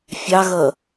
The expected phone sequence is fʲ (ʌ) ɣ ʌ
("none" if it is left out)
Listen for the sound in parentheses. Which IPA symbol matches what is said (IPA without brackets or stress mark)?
ɑ